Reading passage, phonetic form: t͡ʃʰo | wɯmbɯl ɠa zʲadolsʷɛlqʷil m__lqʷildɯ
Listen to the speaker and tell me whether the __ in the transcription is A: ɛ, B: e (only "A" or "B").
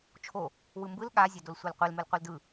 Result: B